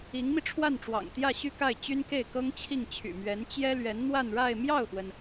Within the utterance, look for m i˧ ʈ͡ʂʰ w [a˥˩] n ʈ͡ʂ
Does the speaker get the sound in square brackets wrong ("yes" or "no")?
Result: no